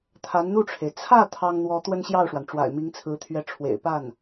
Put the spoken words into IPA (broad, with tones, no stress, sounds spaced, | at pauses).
t̪ʰ a˧˥ n n̪ u˥˩ ʈ͡ʂʰ e˩ ɪ̯ t͡sʰ ä˥˩ t̪ʰ ɑ˥ ŋ n̪ w ɔ˧˥ t̪ w ə˥ n ɕ j ɑ˥˩ ʊ̯ ʂ w a˩ n ʈ͡ʂ w a̰˨˩ ɪ̯ m i˧˥ ŋ t͡sʰ ɹ̩˧˥ t̪ʰ ɥ ɛ˧˥ ʈ͡ʂʰ w ḛ˨˩ ɪ̯ p a˥˩ n